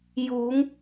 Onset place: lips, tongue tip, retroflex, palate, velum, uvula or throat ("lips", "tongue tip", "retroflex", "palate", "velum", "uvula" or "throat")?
palate